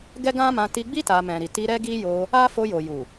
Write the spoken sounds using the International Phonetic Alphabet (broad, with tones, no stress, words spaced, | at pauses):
ɡɛ˦ɡã˦mã˧ ti˧ɡ͡bi˦ ta˧ mɛ̃˨ɾi˨ti˧ ɾɛ˦ɡi˦jo˧ | a˦ fo˧jo˨ju˨